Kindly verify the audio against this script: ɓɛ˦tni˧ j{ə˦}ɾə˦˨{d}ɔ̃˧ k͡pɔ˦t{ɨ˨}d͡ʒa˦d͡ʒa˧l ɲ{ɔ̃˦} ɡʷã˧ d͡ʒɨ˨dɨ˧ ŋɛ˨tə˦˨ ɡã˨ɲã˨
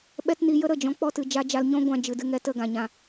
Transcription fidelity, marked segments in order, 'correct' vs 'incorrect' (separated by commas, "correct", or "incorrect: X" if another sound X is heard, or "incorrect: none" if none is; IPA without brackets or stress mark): correct, incorrect: d͡ʒ, correct, correct